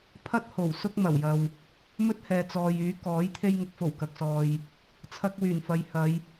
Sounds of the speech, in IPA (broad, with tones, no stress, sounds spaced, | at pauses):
pʰ ɐ˥ t̚ h o˨˩ w s ʊ˥ k̚ m ɐ˨˩ w j ɐ˨ w | m ɵ˥ t̚ h ɛː˨ t͡s ɔː˨ j yː˨˥ k ɔː˨˥ j t̪ʰ e˧ j ŋ ʊ˨ k̚ f o˨˩ w k ɐ˨ k̚ s ɔː˨ j | t͡sʰ ɐ˧ k̚ w yː˨˩ n f ɐ˨ j h ɐ˨˧ j